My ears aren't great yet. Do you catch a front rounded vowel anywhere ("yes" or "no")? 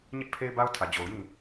no